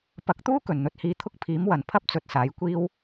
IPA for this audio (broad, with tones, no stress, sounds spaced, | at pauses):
p ɐ˨˥ k̚ t̪ uː˥ k ɵ˨˩ n n̪ ɵ˧ t̚ h iː˧ t̪ʰ ʊ˥ k̚ pʰ iː˨˥ m w ɐ˨˩ n pʰ ɐ˥ p̚ t͡s ɵ˨ t̚ s aː˨˥ j kʷ iː˥ w